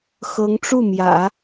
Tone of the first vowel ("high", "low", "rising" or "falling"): rising